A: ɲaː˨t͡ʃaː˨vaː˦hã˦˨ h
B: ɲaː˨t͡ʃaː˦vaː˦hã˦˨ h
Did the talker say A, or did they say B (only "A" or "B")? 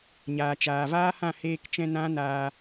A